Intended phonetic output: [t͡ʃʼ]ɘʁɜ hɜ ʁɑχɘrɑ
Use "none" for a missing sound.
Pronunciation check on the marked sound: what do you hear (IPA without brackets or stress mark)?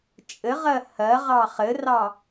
t͡ʃʼ